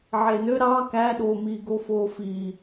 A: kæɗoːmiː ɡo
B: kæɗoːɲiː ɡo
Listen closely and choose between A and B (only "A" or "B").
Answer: A